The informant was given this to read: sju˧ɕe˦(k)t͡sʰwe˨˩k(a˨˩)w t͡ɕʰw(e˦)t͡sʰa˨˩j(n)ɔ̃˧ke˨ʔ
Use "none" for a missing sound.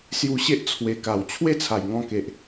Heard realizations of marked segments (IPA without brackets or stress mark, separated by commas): ʔ, a˨˩, e˥˧, ŋ